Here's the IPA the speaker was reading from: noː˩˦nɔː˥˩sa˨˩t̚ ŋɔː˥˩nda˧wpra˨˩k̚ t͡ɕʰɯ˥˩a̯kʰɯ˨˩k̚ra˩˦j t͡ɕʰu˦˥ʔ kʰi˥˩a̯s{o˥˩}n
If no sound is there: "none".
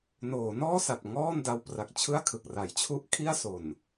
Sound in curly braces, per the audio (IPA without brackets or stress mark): o˨˩